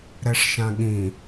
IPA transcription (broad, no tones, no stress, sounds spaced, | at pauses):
ɾ ɛ ʂ ʃ ã ɠ ĩ